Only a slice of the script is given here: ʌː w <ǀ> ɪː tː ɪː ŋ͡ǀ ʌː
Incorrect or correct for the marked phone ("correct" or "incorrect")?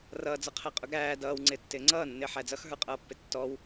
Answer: incorrect